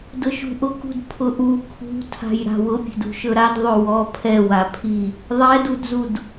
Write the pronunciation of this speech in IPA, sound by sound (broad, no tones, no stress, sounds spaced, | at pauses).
d ʊ ʃ ṳ ʔ ʊ k ṳ d pʰ ʊ ʔ u kʰ ṳ tʰ a̤ j ɾ a̤ w ʊ pʲ ɛ̤ d ṳ ʃ ɵ ɾ a d ðˤ ɵ w ɔ pʰ ɛ w a pʰ i | ðˤ ɛ d u d z u d